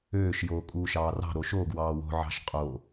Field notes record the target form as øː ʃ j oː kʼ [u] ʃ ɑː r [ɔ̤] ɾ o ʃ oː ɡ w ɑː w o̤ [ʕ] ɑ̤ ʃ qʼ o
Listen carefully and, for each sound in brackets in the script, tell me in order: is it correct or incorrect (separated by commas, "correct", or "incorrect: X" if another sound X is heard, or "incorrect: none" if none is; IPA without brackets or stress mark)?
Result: incorrect: uː, incorrect: ɑ̤, correct